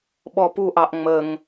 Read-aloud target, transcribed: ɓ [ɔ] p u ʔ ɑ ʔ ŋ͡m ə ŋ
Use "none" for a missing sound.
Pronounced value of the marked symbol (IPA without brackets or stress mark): ɔ